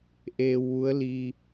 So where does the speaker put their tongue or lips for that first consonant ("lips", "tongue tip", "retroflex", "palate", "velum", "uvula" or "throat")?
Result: throat